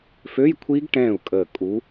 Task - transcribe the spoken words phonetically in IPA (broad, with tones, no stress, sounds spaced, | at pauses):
f ø˧˥˧ j kʷʰ i˦˥ ɡ ʈ ɛ̃ː˥˩ u̯ kʼ əː˧˩ kʼ u˨˥